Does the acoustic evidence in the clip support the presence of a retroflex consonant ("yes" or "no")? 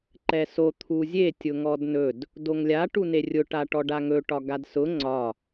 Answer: yes